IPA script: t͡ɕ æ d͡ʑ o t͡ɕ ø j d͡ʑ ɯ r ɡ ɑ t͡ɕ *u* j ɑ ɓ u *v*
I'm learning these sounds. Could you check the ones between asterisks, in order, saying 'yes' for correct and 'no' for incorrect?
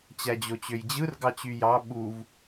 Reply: no, yes

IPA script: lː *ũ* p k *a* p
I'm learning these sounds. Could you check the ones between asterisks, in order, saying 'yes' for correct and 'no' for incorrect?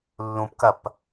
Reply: yes, no

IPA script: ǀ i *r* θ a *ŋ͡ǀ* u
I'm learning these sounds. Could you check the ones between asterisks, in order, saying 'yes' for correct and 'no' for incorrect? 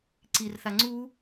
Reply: yes, yes

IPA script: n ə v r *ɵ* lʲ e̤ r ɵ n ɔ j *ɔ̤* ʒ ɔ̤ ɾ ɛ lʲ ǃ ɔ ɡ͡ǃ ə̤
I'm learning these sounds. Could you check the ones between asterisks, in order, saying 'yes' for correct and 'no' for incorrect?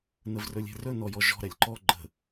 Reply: yes, no

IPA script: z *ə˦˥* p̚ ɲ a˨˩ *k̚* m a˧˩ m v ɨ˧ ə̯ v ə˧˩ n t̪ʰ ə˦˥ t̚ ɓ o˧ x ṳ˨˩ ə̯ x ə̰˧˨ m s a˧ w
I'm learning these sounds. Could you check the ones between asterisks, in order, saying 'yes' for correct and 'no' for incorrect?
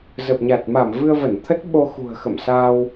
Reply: no, no

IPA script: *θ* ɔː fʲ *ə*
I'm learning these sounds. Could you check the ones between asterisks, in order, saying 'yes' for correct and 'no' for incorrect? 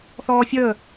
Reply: yes, no

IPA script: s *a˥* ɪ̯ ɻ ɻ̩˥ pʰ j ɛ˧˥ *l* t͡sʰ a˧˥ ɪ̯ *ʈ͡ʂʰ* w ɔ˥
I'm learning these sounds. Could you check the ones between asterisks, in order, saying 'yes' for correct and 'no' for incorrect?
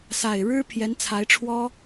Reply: no, no, yes

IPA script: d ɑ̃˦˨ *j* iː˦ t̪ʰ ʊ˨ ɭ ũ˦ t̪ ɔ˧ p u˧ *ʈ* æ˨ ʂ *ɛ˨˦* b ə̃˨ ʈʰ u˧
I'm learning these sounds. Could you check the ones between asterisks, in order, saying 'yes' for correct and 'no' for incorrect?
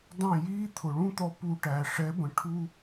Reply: yes, yes, yes

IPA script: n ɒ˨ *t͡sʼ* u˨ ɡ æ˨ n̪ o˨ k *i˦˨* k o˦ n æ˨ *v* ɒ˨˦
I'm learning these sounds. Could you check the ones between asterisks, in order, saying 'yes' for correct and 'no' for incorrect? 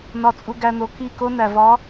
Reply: yes, yes, yes

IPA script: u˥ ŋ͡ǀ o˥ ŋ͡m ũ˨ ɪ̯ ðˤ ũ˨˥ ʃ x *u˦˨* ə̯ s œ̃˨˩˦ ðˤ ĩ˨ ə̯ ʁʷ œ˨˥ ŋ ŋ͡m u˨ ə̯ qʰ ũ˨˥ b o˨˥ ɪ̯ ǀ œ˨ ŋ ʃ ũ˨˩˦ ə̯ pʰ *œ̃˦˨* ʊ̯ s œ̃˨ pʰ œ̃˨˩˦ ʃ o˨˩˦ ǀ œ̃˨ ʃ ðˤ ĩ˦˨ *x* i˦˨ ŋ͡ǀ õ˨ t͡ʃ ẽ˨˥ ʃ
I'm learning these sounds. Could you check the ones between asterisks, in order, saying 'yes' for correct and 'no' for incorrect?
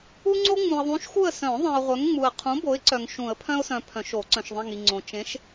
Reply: yes, no, no

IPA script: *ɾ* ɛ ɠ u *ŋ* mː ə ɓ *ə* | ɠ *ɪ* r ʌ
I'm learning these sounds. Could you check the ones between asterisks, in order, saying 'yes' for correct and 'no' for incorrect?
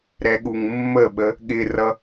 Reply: yes, yes, yes, yes

